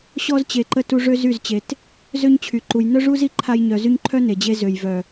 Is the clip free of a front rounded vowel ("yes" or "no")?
no